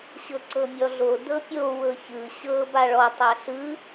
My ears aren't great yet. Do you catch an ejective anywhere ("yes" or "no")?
no